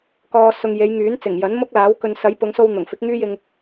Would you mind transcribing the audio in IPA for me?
k ɔː˨ s ʊ˨ ŋ j e˨˧ j ŋ yː˨˥ n t͡s ɪ˨˩ ŋ j ɐ˨˥ n m ʊ˥ k̚ l aː˨˥ w k ɵ˨ n s ɐ˨˥ j p ʊ˨˧ ŋ s o˧ w n̪ ʊ˨˩ ŋ f ɪ˨˥ k̚ ŋ yː˥ j ɪ˧ ŋ

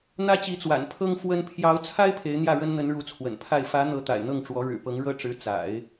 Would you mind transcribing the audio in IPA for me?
n̪ ä˥ t͡ɕ i˧˥ t͡s w a̰˨˩ n pʰ ɤ˥ ŋ f w ə˥ n pʰ j ɑ˧˥ ʊ̯ t͡sʰ a˥ ɪ̯ pʰ e˧˥ ɪ̯ n̪ j ä˥˩ ɻ ə˥ n n̪ ə˧˥ n ɻ u˧˥ t͡sʰ w ə̰˨˩ n pʰ a˥˩ ɪ̯ f ä˧˥ n̪ ɤ˧˥ t̪ a̰˨˩ ɪ̯ n̪ ɤ˥˩ ŋ ʈ͡ʂ w ɔ˧˥ ɻ ɻ̩˨˩ p ɤ˧˥ ŋ ɻ ɤ˥ ʈ͡ʂ ɻ̩˧˥ t͡s a̰˨˩˦ ɪ̯

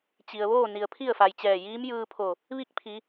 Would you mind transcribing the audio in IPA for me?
t͡ɕ i˩ ə̯ ʋ oː˥˨ n i˩ ə̯ pʰ i˥˨ ə̯ f a˩ j t͡ɕ ɛː˧˩ j iː˧˥ m j ɯː˧ pʰ o˧˩ | ʋ i˥˨ k̚ pʰ i˩˧

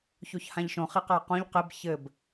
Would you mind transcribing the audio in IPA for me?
ç o ç h ã ʎ ʃ õ χ i q a q õ ʎ q e b ç ɘ b

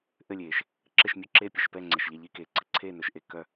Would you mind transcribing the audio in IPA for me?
ʔ ɘ˧˩ lʲ eː˩ ʃ | ǁ ɘ˧˩ ʃ mʲ ɵ˧˩ ǁ eː˧˩ pʲ ɘ˧˩ ʃ p ɛː˧˩ ŋ͡ǀ ɛ˩ ʃ ʎ ɛ˧˩ ʎ i˧˩ k eː˩ ǀ ɘ˩ ǀʰ eː˧˩ n ɵ˩ ʃ ʔ e˧˩ k œ˧˩

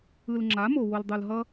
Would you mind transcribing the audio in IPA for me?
ɯ˨ l ŋ͡ǁ a˨˦ m o˨ w o˨ l dˤ u˨ l ɦ ʌ˦

